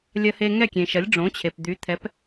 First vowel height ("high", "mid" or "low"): low